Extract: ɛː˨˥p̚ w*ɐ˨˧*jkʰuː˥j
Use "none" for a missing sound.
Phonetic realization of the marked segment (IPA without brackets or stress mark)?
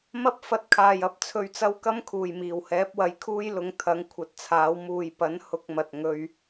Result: ɐ˨˧